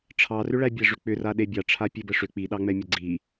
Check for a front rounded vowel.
present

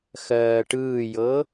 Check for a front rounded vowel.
absent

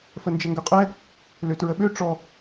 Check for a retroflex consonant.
present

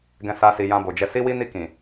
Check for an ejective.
absent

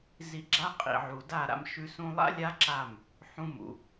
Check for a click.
present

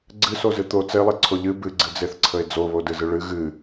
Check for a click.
present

